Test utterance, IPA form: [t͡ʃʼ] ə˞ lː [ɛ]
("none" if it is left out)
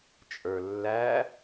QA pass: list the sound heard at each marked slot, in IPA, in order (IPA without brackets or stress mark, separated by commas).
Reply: t͡ʃʼ, æ